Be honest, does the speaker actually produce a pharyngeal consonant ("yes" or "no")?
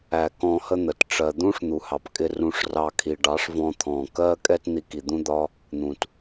no